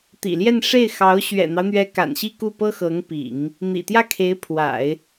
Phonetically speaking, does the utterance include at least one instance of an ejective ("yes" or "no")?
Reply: no